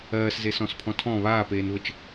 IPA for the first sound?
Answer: ɜː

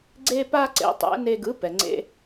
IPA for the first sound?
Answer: ɡ͡ǀ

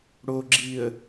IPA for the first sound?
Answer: ɽ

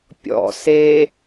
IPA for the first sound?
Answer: pʲ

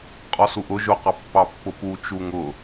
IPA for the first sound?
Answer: qʼ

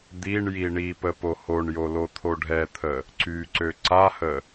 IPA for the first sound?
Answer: d̪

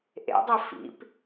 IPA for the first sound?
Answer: ʔ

